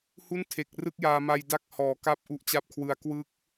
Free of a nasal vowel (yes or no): yes